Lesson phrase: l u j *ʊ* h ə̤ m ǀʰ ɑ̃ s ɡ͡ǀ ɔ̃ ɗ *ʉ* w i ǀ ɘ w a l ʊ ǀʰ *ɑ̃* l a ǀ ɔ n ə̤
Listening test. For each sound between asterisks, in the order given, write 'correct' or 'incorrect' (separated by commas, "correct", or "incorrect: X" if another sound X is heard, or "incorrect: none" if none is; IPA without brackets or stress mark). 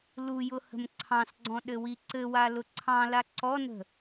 correct, incorrect: ɘ, correct